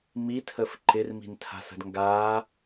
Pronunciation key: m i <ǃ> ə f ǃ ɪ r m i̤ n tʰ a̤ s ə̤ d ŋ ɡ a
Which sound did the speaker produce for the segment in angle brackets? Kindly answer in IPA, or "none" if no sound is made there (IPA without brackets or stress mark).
tʰ